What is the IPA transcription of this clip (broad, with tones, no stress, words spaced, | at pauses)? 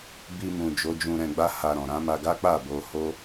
bi˧mũ˨d͡ʒo˨˦ d͡ʒũ˧ɾɛ̃˧ɡ͡ba˦ ha˧ɾɔ̃˨ ɾã˨˦ma˧ɡa˦ k͡pa˦˨bo˧ho˦